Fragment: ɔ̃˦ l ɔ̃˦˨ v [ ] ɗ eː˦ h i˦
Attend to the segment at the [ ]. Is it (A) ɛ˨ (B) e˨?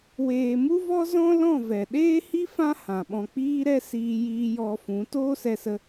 A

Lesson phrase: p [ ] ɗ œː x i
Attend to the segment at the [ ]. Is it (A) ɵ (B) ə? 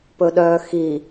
A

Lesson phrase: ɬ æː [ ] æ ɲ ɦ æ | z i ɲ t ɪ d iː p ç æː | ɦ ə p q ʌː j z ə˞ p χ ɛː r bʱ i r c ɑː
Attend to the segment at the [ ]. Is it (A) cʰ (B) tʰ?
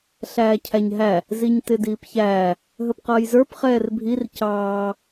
A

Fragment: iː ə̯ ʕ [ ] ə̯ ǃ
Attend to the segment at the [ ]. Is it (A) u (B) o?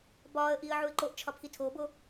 A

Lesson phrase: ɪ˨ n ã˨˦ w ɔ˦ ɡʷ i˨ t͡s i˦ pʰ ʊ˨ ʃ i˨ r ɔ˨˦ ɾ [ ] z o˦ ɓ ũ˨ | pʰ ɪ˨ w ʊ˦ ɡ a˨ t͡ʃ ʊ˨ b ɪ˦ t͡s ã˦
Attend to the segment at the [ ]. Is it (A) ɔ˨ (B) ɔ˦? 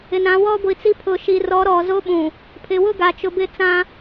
A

